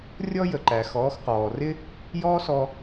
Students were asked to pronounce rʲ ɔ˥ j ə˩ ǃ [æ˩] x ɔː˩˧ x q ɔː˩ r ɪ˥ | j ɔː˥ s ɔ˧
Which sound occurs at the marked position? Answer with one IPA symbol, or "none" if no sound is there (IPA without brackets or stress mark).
æ˩